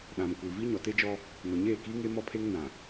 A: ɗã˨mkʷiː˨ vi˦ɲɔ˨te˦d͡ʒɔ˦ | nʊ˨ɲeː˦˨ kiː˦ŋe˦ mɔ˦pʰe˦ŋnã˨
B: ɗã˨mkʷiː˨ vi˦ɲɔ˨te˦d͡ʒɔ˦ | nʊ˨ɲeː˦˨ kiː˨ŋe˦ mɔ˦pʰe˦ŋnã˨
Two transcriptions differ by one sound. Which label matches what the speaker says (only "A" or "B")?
A